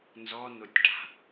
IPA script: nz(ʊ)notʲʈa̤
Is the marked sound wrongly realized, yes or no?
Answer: yes